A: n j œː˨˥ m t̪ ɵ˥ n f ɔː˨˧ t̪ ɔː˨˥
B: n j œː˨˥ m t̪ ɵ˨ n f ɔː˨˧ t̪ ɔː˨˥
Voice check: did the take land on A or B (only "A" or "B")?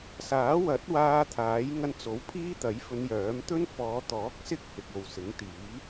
A